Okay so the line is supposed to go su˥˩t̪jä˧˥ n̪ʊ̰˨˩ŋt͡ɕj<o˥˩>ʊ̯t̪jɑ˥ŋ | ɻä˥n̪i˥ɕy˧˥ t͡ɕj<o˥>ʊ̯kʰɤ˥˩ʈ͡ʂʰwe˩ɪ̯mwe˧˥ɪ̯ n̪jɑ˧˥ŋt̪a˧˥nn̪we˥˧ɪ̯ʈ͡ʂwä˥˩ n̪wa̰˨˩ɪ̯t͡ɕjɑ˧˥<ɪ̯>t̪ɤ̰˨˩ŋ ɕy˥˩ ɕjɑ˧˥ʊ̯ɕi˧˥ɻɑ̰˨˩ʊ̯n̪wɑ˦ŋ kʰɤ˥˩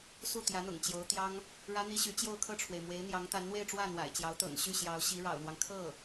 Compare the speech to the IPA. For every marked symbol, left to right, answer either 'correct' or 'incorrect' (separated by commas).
incorrect, incorrect, incorrect